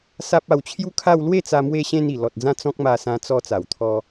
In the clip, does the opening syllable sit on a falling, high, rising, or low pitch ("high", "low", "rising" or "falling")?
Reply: high